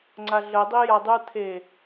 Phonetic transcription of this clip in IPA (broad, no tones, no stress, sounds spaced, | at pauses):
ŋ͡ǀ a ɮ ə dˤ i j a dˤ ɯ t̪ʰ e